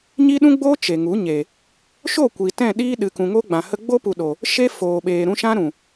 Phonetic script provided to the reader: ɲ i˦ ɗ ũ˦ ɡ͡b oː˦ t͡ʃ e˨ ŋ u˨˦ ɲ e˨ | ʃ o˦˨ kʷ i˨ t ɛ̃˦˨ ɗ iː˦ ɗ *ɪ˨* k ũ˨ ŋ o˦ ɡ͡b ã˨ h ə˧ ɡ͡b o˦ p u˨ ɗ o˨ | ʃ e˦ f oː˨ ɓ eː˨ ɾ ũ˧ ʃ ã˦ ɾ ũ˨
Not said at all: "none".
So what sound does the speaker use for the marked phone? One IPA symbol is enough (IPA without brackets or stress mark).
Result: ɨ˨